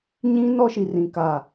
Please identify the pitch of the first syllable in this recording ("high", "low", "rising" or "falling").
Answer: high